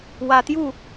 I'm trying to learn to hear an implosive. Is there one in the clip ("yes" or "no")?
no